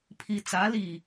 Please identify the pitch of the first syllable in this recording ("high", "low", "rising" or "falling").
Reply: low